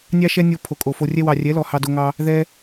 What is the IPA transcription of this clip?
nʲ ɑ˦ ʃ ɛ˦ nʲ o˧ pʰ o˨ kʼ o˨ f o˧ rʲ ɛ˧ w ɑ˨ rʲ ɛ˨˦ l ɔ˨ h ɑ˧ d o˧ ŋ ɑ˧ | ð ɛ˦

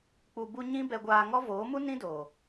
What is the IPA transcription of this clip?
k͡p u˧ b u˦ ɲ ĩ˦ b ɛ˧ ɡʷ aː˧ ŋ ɔ˦ v oː˨˦ m u˦ n ĩ˦ d oː˨

